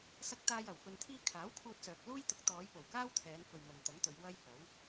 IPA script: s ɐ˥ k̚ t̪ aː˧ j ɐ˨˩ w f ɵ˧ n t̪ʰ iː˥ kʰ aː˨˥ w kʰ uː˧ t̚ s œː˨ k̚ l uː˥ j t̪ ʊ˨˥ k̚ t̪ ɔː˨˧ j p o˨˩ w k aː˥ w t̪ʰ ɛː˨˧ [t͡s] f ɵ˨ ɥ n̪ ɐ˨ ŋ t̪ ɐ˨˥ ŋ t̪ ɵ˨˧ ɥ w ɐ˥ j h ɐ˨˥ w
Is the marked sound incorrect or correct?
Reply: incorrect